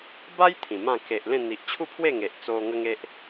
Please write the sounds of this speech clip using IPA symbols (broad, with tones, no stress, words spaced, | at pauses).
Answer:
ba˦j t̪ʰĩ˨˩mã˥˧ ke˨ʔ lẽ˥˧ n̪i˨ʔt͡ɕʰu˥˧pʰwe˥˧ ŋe˨ʔt͡so˧ ŋə˦ŋe˦ʔ